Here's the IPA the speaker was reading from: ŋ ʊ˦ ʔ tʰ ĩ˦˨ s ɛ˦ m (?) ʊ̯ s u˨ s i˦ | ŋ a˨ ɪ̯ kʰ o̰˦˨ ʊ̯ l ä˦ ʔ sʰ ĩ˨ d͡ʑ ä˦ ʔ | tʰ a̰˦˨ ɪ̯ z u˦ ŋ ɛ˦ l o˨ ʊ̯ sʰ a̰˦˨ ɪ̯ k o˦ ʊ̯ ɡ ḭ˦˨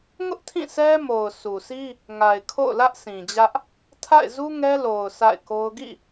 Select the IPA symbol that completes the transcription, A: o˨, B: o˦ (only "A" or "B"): A